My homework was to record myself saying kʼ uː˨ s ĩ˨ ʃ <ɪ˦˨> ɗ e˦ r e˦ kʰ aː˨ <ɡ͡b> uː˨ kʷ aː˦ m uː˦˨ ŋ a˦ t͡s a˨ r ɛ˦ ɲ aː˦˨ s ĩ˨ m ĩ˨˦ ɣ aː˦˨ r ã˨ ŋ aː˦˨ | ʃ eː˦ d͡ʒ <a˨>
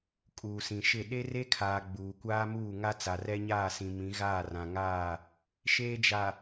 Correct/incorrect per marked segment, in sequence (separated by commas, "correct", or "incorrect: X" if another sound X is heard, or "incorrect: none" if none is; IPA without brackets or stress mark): correct, correct, correct